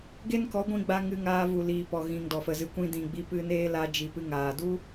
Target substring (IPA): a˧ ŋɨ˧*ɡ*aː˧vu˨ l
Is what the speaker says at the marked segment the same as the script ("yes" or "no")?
no